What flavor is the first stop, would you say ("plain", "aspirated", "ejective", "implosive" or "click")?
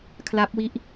aspirated